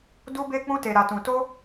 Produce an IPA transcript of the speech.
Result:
du˦be˦k͡pũ˦ te˧ɾa˧tũ˧ to˦

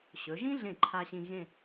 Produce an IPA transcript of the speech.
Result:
ɕɵ˩˧ʒĩ˥ɮẽ˧˩ ǃʰa˧ ɕĩ˧ɣẽ˥˧

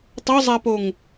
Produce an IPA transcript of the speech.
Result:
tˤozˤapoŋ

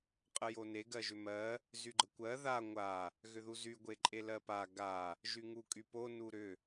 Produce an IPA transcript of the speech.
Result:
qʼəjone ɡɜʒʏmɜ | zyɡ͡ǃəkʷɜ ða ŋʷa | ɣʏðuzy ɡʷeǃʼelɜpa ɡa | ʒyŋukʼypo nuɾʏ

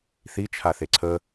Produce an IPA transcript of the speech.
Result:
θit͡ʃʰaθe ǀʰə

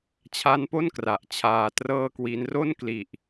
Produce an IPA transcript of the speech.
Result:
t͡ɕʰa˦˥npo˥˩n kra˨˩ʔt͡ɕʰaː˧trɤː˥˩kwi˦˥n ro˥˩nkli˨˩ʔ

